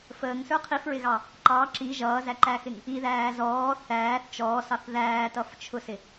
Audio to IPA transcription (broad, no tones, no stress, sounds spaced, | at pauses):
f əː ŋ s ə˞ qʰ i f ɹ ɪ ɣ ɑ | ǃ ɑ ǁ i ʒ ʌː z æ ǃ æ x ɪ ŋ | i ð æː z ɔː θ æː θ t͡ʃ ɔː s ɑ θ ð æː t ʌ f t͡ʃʰ ʊ s ɪ